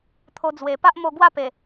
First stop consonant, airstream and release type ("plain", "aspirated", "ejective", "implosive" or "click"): aspirated